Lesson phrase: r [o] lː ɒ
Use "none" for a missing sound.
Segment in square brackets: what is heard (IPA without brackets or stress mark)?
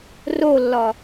o